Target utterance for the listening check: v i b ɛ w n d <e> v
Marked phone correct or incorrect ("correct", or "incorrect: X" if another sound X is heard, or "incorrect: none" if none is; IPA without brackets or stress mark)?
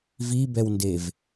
correct